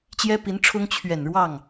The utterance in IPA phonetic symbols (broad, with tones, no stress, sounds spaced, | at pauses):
t͡ɕ j ɛ˥ p i˧˥ n ʈ͡ʂʰ ʊ˥ ŋ t͡ɕʰ ɥ ɛ˨˩ n ɻ w ɑ˥˩ ŋ